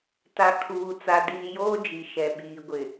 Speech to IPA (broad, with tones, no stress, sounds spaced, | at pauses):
t a˨ kʰ uː˨ t͡s a˨ d iː˨ j oː˦ d͡ʒ i˨ ʃ ɛ˨ ɓ iː˨ ɡʷ ɪ˨